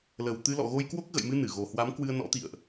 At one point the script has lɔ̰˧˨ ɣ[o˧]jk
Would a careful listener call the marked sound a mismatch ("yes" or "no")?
no